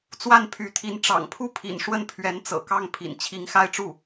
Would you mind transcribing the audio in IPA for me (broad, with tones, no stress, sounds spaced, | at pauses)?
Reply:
t͡s w a˥˩ n pʰ y˧˥ t̪ʰ i˧˥ n ʈ͡ʂ ɑ̰˨˩ ŋ pʰ u˥˩ pʰ ḭ˨˩ n ʂ w ə˥˩ n pʰ ɥ ɛ˧˥ n t͡s ɤ̰˨˩ k ɑ˥˩ ŋ pʰ ḭ˨˩ n t͡ɕʰ i˧˥ ŋ x a˥˧ ɪ̯ ʈ͡ʂ u˥˩